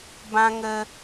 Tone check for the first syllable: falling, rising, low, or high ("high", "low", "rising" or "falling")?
high